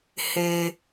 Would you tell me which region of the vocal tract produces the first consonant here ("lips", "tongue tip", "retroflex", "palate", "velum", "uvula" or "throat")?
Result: throat